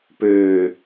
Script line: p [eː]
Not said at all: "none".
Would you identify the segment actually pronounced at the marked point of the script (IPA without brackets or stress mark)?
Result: øː